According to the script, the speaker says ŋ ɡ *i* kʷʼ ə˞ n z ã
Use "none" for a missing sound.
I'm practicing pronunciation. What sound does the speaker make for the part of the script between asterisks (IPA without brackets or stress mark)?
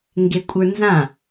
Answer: e